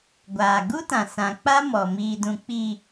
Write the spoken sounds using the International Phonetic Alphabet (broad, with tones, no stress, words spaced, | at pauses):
ɡʷaː˨ɡu˦tã˨ sã˨ k͡pa˦mɔ˨ mi˨dũ˨ k͡pi˨